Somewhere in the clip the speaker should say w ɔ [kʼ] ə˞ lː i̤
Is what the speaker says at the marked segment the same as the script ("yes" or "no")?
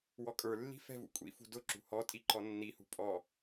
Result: yes